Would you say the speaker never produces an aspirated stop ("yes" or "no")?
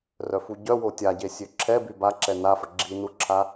no